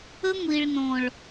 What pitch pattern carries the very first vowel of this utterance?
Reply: high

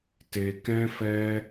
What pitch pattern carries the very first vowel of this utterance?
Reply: high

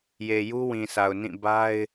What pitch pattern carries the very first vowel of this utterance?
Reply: low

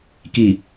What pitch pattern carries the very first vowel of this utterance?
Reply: low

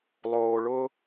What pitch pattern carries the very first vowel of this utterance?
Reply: low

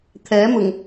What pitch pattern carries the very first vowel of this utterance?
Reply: rising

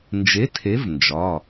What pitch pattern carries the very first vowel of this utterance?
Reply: rising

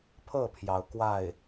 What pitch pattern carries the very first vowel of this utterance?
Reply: falling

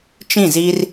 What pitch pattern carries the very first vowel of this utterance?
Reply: falling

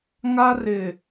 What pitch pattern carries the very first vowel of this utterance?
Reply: high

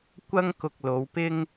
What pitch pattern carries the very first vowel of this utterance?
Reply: high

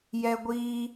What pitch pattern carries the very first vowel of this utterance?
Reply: high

